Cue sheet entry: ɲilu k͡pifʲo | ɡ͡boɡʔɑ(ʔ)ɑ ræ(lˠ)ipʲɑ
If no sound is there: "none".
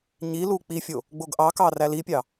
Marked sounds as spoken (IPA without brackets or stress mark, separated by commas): k, l